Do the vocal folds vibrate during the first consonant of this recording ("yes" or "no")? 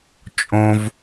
no